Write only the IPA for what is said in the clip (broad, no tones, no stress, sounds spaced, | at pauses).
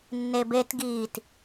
nː e b e t ɡ iː t